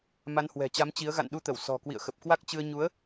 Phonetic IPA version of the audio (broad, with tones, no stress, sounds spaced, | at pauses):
m a˨˦ n h w ɛ̤˨˩ t͡ɕ a˨˦ m t͡ɕ i˨˦ ə̯ ɣ a̰˧˨ n ɗ u˧ t̪ ə˧˩ w s ɔ̤˨˩ k w ḭ˧˨ ə̯ x ə˨˩ p̚ k w a˦˥ k̚ t͡ɕ ɨ˧ ə̯ ɲ u˨˦ ə̯